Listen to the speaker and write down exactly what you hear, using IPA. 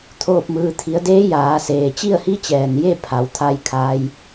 t̪ʰoː˥˨p̚mɯː˧ t̪ʰi˩˧ə̯deː˧˥ jaː˩˧ seː˩t͡ɕi˥˨ə̯hi˧˥t͡ɕɛː˩n je˥˨ pʰa˩˧wt̪ʰa˧j kʰaː˧j

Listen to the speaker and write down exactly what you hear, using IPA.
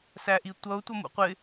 sæʔitʷʌʊ̯ tʷʌmṵqʷɪ

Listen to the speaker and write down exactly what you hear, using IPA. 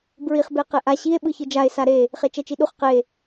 bɹiχ beqeʔa ɕie̯ ɓɯçɯd͡ʒae̯ saɾe | χet͡ʃɛt͡ʃiɗuχ qe

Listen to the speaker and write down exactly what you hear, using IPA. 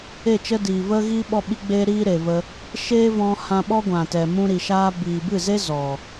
e˦˨t͡ʃə˦diː˨ və˦ɣi˦ ɓɔ˧ɓi˧ɡ͡beː˧ ɾiː˦ɾe˨və˧ | ʃeː˦vɔ̃˧ hã˧ɓɔ˦ ɡʷã˨tɛ˨ mũ˧ɾi˨ ʃaː˧ biː˨bɨ˦˨ze˦ zɔ˨

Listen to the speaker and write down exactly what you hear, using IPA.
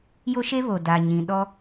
jo˦ʃe˦ βo˨da˨ɲĩ˨ ɗɔ˦

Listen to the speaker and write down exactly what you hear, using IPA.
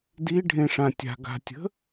diɖʱẽʂã tʲa̤ɡa̤tʲə̤

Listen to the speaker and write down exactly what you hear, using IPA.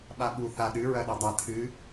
ɓaɓu θa ɗɨɹɐ ɗadˤa tʰɨ

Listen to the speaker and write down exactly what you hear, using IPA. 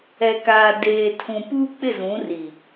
ɛ˨kaː˨deː˨tʰũ˨ puː˦k͡pɪ˦˨zũ˨˦ri˨

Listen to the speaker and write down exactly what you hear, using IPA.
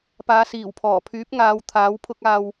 paː˨˧siː˨˩w pʰɔː˨˩pʰyː˨˥p̚ŋaː˨˧w t̪ʰaː˨˥wpʰʊ˥k̚aː˧w

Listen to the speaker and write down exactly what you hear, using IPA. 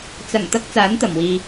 t͡sɐ˨˩ŋt̪ɐ˧k̚ t͡saː˨˥nt̪ɐ˨˩mwiː˨

